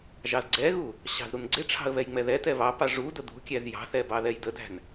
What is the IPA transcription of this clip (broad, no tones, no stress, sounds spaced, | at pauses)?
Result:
ʒ ɑ z ɡ͡ǀ ɛ ɣ u | ɕ ɑ̤ z ɾ u n ɡ͡ǀ ɪ ʈ͡ʂʰ ɑ̤ ə̯ β ɛ j ŋ͡m ɛ ð ɛ t ɛ β ɑ p ɑ ʐ u d ə d̪ ṳ kʲ æ z j ɑ̤ θ ɛ b ɑ ð ɛ j d ə d æ̤ n